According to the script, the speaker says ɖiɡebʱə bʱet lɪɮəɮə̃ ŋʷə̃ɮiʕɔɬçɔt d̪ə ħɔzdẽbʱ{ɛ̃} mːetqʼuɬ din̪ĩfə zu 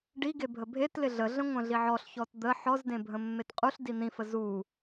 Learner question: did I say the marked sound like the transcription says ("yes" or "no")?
no